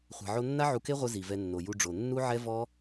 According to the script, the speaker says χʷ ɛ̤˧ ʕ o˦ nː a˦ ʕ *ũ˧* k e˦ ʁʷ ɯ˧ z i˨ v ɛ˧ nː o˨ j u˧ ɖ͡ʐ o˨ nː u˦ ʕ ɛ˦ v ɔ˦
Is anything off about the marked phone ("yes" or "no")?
yes